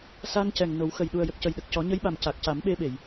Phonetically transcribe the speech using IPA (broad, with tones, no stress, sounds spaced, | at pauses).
s a˧ n c ɛ˨˩ ŋ n o˨˩˦ w x ə˨˩ j ɗ u˨˩ ə̯ j ə˨˩ k̚ c ə˨˩ j ɗ ə˨˩ k̚ c ɔ˨˩˦ ɲ ə˧˥ j ɓ a˨˩ m c a˨˩ k̚ c a˨˩˦ m ɓ e˧ ɓ e˨˩˨ j